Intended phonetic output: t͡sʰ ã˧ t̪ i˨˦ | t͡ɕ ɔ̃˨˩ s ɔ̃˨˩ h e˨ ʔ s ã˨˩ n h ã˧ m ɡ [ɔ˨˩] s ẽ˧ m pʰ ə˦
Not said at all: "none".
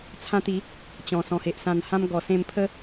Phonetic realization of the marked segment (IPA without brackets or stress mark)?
ɔ˨˩